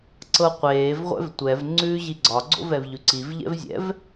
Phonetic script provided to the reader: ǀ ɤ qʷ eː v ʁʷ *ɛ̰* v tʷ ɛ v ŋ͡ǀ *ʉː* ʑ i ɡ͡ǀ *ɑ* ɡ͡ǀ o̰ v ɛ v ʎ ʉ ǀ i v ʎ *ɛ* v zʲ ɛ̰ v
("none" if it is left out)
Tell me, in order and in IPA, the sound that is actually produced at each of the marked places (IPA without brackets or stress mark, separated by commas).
ɛ̰, ʉː, ɒ, ɛ̰